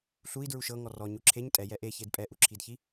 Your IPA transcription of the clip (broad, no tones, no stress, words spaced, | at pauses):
ɬui̯ dɹuʃɤŋɔ rɔ ɲuǁʰeɲ tʼɛ jɛʔeçed pʼɛʔuǁʰidçi